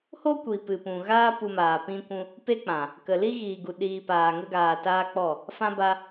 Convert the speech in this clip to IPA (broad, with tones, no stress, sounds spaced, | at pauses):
h o˦ kʷ i˨ p ɨ˨ p ũ˨ ɣ aː˦ p u˧ m aː˨ p ĩ˦ kʷ ũ˦ | p e˦ k͡p ã˨ | k ə˨ l i˦ ɣ iː˨ ɡ u˨ ɗ iː˨ p aː˨ ŋ ə˧ ɡ aː˨ t aː˧ k͡p ɔ˦˨ | f ã˧ b a˧